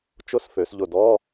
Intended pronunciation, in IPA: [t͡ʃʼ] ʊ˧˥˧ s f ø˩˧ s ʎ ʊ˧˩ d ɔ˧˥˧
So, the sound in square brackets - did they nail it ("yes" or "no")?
no